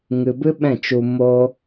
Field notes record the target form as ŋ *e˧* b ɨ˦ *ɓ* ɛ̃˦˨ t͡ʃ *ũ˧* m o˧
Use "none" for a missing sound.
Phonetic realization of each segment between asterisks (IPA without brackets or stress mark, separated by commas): ɨ˧, ɓ, u˧